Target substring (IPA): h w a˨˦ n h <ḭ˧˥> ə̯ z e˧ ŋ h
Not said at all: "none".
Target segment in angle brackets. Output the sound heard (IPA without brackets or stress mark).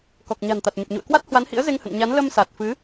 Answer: ḭ˧˥